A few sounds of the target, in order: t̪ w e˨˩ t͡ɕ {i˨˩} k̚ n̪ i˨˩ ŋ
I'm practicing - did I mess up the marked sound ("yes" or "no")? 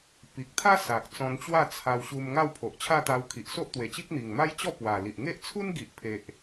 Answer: yes